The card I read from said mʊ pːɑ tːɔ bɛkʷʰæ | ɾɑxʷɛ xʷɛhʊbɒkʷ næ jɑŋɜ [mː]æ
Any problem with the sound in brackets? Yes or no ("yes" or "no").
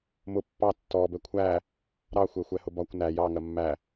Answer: no